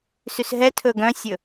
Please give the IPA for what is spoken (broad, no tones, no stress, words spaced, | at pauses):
sysɦɛtʰɵ ɡœ̃sʲɵ